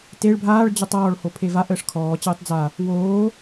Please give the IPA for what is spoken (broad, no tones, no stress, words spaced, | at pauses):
teɭ bʱaːɭ d͡ʑɔtˤɔːɭ hopʰevaʔ əːʂkʰɔː t͡ɕəːtˤd͡za | woː